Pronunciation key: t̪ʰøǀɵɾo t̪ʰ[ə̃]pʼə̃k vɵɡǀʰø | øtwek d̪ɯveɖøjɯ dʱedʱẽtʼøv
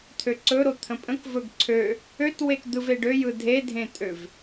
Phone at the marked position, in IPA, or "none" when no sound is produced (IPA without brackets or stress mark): ə̃